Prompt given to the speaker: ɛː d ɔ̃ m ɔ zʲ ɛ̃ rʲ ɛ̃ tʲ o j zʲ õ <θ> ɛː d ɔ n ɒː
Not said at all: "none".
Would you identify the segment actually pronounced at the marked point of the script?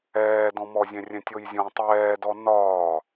tˤ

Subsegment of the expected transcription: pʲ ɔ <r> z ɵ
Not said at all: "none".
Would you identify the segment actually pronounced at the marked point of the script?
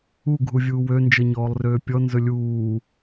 n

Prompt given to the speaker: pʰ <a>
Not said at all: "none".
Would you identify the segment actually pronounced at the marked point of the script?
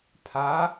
a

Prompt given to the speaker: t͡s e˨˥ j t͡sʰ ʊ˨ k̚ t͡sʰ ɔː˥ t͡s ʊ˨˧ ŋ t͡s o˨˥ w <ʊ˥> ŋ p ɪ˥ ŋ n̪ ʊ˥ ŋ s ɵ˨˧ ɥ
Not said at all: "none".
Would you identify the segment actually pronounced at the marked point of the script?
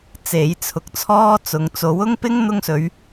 ʊ˥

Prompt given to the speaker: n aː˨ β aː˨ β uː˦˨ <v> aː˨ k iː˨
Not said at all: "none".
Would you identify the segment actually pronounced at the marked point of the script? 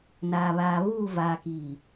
v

